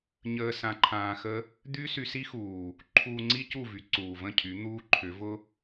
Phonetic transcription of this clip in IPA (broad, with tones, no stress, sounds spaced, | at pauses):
ɲ əː˧ s ã˧ ǃʰ ãː˧ x ə˦ | d̪ y˦ s y˧ s i˦ x uː˨ | ǃʰ uː˧ ŋ͡ǀ i˦ c u˦˨ v y˨˦ ǀ uː˨ v ə̃˦˨ cʰ y˨˦ n̪ uː˦ ǃʰ ʏ˨˦ v ʊ˦